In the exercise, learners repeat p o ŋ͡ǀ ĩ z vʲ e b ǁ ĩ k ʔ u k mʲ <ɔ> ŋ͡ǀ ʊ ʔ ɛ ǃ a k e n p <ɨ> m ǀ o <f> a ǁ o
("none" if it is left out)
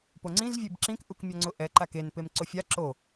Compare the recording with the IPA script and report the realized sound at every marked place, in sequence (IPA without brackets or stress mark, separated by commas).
ɔ, e, fʲ